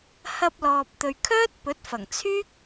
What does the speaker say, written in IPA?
h ɐ˧ p̚ l ɔː˨ p̚ t̪ ɵ˨ ɥ kʰ œː˥ t̚ p ɵ˨˥ t̚ f ɐ˨˩ ŋ t͡sʰ yː˥ k̚

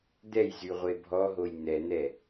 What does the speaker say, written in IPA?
d̪ ɛ j z y ʁʷ e bʱ ɔ ɦ o j n̪ ɛ n̪ ɛ

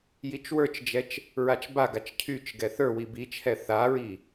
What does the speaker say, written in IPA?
j i t͡ʃ w ə˞ t͡ʃ d͡ʒ ɛ t͡ʃ | ɹ a t͡ʃ b a ɡ a t͡ʃ cʰ y t͡ʃ ɡ ɛ θ ə˞ w i b i t͡ʃʰ ɛ θ a ɹ i

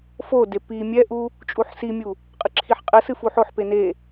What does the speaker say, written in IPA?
f o d e p i mʲ ɛ ʔ u | t͡ʃʼ u ħ s i mʲ u | qʼ ɨ ǁʰ i ħ qʼ ɘ s ɨ f u ħ o ħ p e n e

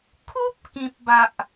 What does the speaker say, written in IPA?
kʰ u˦ p̚ k ĩ˨ p̚ b a˨ ʔ

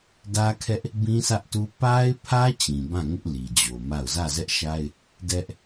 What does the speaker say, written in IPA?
d ä˦ kʰ ɛ˦ ʔ | b ĩ˦ sʰ ä˦ ʔ t u˦ p a˦ ɪ̯ pʰ ä˦ t͡ɕ ĩ˨ b ã˦˨ ŋ ɪ˦ ʔ l i˨ d͡ʑ o˨ m a˦˨ ʊ̯ z ä˦˨ z ɛ˦ ʔ ʃ a˦ ɪ̯ | d ɛ˦ ʔ

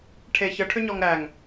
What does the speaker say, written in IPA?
ʈʰ e ç ə ʈʰ ʏ ɲ ɔ ŋ ɾ æ ŋ

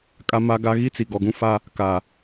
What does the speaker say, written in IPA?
kʼ a˦ m a˦ ɡ a˦ ɣ i˦ t͡s i˨ ɡ ɔ˨ ɡ ũ˦ f a˦ | k a˨

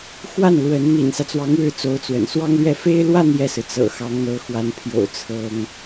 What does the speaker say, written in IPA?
x w a˥˩ n l w ə˧˥ n n̪ ḭ˨˩ n s ä˦ t͡s w ɑ˧˥ ŋ ɻ ɻ̩˥˩ t͡s o˧˥ ʊ̯ t͡s w ə̰˨˩ n s w ɑ˥ ŋ l ɥ ɛ˥˩ f e˥ ɪ̯ l w a˥˧ n j ɛ˥˩ s ɹ̩˩ t͡s ɤ̰˨˩ x ɑ˧˥ ŋ n̪ ɤ˧˥ x w a˧˥ n pʰ j o̰˨˩ ʊ̯ t͡sʰ ɤ˥ ŋ

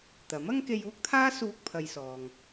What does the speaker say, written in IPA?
t̪ ɐ˨˥ m ɐ˥ ŋ k e˧ j uː˥ k̚ t̪ʰ aː˥ s uː˥ k̚ pʰ ɐ˧ j s ɔː˨ ŋ

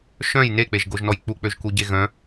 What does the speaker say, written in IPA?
ʃ œ̃ j n e k͡p e ʒ ɡ o ʒ n ɔ j k͡p u k͡p ø ʒ k u ɟ e ɣ œ̃

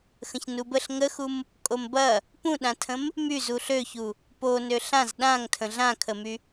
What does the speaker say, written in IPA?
x ə̃ ç n u b ə ɬ ŋ ə x u m | kʼ o m b ɐ | p ũ ɗ ã tʰ ə̃ m | m y z u ɬ ø ç u | p o n ø ɬ ã z ɗ ã ŋ tʰ ə̃ ɮ ã kʰ ə m y

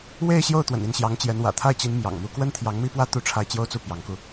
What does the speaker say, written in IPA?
w e˥˧ ɪ̯ ɕ j o˥˩ ʊ̯ t̪ w ə̰˨˩ n i˥˩ n ɕ j ɑ˧˥ ŋ t͡ɕ j ɛ˧˥ n w ä̰˨˩ t̪ʰ a˥˩ ɪ̯ t͡ɕ i˧˥ n m j ɑ̰˨˩ ŋ m u˥ k w ə˥ n t̪ʰ j ɑ˧˥ ŋ m i˥ p w ä˥ t̪ u˥˧ ʈ͡ʂʰ a˥˩ ɪ̯ t͡ɕ j o˥ ʊ̯ t͡s u˥˩ p j ɑ˧˥ ŋ k u˧

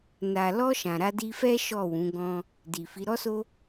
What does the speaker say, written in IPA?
n a˨ l ɔ˧ ʃ ã˨ ɾ a˧ d i˧ f ɛ˦ ʃ ɔ˦˨ w ũ˨˦ ɡ ɔ̃˦ | d i˨ f i˨˦ ɾ ɔ˦ s o˦

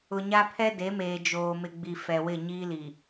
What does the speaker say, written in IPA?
ʊ˨ ɲ a˦ pʰ ɛ˦ d e˨˦ m eː˨ d͡ʒ oː˨ m ɪ˨ ɡ͡b i˨ f ɛ˨ w ɪ˦˨ ɲ iː˦ l i˨

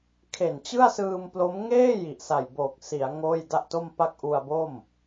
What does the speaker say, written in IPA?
kʰ e˨˩ n t͡ɕ ɯ˥˩ a̯ s ɯː˧ m p l o˦˥ m ŋ eː˥˩ j i˨˩ ʔ s a˨˩ j b oː˨˩ k̚ s i˩˦ a̯ ŋ oː˥˩ j d a˥˩ ʔ t o˥˩ m p a˥˩ k̚ ʔ u˧ a̯ b o˥˩ m

